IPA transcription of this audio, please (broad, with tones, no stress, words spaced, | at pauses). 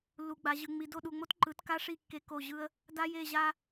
lːu˨ɡ͡ba˨ʑɯ˨ ŋ͡mi˨ do˦˨ɗu˨ŋ͡mo˦t ǃɯ˨˦tka˦ʂi˦˨ kːe˦ko˦˨ʑɯ˦ə̯ | da˦je˦˨ʑa˦